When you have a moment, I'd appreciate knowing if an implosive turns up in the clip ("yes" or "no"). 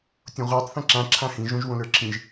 no